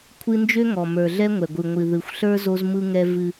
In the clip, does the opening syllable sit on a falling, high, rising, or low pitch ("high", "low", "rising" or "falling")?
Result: high